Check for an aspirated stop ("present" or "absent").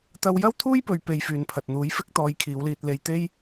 present